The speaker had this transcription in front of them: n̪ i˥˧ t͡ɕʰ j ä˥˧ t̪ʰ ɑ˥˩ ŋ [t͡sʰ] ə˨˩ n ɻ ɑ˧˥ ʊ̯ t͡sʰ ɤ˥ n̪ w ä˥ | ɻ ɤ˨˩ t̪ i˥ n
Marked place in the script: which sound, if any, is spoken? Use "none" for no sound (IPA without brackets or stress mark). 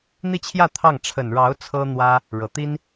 ʈ͡ʂʰ